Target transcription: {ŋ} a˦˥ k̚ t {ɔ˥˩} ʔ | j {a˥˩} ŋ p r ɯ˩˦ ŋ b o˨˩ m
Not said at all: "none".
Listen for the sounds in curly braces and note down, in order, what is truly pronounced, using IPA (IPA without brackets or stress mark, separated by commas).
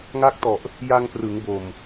ŋ, ɔ˨˩, a˧